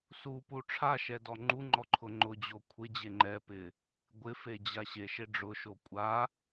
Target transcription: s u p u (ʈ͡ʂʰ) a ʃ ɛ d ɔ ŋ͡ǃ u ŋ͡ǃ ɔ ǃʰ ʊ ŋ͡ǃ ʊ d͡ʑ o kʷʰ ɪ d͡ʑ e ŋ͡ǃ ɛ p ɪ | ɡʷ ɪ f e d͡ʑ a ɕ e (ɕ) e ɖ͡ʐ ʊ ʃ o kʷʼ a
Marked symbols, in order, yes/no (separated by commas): yes, no